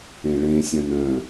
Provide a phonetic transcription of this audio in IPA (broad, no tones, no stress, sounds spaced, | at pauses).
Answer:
ẽ ɭ ẽ sʲ œ̃ n œ̃